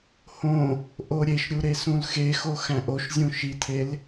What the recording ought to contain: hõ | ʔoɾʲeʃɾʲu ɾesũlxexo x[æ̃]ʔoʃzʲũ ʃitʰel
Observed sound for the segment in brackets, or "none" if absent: æ̃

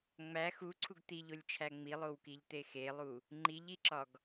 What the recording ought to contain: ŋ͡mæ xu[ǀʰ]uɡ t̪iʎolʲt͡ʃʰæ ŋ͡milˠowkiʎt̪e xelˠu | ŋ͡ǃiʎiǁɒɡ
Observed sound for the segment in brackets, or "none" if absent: ǀʰ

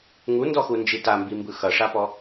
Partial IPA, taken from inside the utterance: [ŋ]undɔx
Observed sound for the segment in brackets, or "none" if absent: ŋ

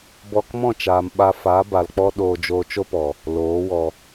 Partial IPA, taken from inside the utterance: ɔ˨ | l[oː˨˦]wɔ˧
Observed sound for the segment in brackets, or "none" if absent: oː˨˦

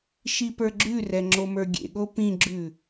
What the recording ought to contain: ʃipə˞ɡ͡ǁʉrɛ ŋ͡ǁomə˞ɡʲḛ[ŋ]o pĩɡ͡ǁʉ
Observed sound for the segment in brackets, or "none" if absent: ɠ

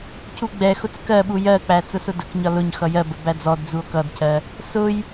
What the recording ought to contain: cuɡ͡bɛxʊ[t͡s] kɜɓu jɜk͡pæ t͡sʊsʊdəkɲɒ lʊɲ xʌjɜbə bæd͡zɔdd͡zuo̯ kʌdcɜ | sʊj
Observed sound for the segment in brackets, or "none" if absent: t͡s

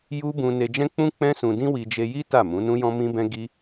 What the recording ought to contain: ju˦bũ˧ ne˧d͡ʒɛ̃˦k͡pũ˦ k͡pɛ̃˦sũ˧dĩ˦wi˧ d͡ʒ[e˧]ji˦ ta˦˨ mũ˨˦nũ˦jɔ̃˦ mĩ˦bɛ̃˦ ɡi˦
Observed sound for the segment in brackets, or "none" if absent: e˧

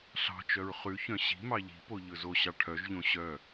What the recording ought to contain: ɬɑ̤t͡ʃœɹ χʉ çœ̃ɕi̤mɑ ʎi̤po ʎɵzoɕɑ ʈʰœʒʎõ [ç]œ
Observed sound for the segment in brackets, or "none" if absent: ɕ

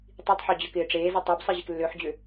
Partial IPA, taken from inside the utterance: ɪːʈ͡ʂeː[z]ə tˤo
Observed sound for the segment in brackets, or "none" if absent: z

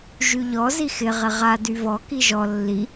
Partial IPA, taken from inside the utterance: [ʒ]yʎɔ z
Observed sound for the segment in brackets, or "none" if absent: ʒ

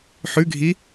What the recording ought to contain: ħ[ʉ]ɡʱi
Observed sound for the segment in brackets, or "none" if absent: ʉ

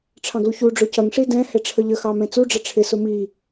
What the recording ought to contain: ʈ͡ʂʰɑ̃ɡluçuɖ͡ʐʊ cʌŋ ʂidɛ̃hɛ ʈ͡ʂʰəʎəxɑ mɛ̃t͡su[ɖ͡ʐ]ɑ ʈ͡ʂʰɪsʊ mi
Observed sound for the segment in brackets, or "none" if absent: ɖ͡ʐ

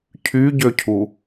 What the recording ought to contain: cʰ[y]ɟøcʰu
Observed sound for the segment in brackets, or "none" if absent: y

